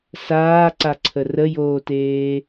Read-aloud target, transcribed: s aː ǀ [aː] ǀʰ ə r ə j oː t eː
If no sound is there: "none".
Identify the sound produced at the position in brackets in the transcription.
a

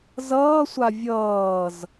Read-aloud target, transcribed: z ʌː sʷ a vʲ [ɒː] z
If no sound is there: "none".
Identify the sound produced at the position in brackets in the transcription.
ʌː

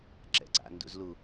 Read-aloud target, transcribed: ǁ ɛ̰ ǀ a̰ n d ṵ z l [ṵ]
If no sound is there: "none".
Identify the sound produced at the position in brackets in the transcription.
u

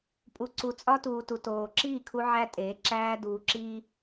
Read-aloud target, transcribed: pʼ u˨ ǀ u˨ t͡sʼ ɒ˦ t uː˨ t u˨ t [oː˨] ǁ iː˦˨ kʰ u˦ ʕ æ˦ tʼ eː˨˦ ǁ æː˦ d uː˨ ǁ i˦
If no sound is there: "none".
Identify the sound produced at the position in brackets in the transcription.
oː˨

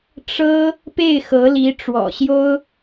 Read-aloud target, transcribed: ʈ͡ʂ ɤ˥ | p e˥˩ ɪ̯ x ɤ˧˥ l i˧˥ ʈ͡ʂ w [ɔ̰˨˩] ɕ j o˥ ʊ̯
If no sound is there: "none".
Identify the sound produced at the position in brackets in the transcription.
ɔ̰˨˩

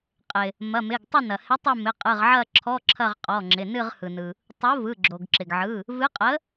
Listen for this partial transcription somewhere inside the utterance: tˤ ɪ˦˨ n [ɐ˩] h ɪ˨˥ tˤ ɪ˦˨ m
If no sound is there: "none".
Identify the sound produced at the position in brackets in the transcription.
ɐ˩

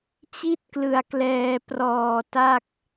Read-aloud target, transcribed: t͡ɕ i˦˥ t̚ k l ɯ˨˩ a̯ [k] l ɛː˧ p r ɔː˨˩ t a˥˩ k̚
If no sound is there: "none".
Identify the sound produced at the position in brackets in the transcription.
k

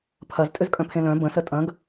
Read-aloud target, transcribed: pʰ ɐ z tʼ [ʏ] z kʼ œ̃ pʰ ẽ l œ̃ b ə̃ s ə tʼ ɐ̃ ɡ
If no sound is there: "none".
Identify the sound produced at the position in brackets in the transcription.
ʏ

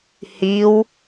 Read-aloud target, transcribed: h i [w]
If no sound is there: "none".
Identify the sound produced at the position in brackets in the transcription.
w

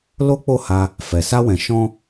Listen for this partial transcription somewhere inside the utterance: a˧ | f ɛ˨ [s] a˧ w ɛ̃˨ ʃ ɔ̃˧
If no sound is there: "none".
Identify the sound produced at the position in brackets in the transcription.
s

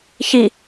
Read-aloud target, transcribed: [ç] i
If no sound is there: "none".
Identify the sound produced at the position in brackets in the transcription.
ç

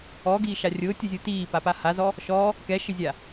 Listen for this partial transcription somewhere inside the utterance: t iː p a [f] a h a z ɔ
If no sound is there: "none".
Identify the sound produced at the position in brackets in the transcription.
p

